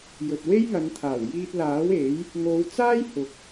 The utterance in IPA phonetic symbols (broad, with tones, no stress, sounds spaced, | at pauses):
j ɵ˨ t̚ w e˥ j ŋ ɐ˨˧ n t̪ʰ aː˨˩ w j iː˧ t̚ l aː˨˥ w e˨˥ j | ŋ o˨˧ w t͡s aː˥ j h ʊ˨ k̚